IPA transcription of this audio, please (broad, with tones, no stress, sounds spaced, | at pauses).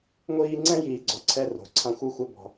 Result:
ŋʷ iː˦ ŋ͡ǀ ɛ̃˦ j iː˨ ɡ͡ǀ ɔ˨ ǀʰ ɛ˦ r o̤˨ ǀʰ ã˦ xʷ ɨ˦ xʷ ɛ˦ b ɔ̤˦